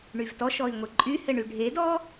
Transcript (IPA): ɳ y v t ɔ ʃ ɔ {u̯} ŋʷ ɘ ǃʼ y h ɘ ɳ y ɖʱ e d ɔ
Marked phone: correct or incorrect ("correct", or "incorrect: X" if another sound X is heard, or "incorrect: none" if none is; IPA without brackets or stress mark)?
incorrect: i̯